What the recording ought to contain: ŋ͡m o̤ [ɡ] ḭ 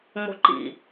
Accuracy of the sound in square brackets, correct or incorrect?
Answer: incorrect